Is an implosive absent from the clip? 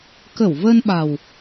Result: no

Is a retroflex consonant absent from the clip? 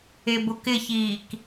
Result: yes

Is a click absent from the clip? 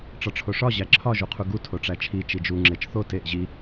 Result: no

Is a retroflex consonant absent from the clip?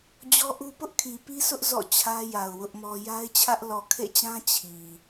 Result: yes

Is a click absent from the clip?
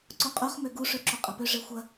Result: no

